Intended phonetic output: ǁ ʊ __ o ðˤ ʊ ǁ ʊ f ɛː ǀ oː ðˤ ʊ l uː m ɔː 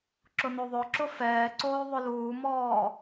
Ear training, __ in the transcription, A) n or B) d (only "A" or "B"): A